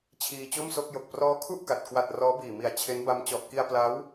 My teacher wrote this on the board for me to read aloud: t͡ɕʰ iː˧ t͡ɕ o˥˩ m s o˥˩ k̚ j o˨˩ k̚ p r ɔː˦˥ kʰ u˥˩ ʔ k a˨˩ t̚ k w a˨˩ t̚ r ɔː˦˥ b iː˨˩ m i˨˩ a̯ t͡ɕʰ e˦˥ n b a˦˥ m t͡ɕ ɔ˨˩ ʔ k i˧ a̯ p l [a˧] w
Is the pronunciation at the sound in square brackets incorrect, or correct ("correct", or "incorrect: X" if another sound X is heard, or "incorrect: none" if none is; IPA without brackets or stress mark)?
incorrect: a˦˥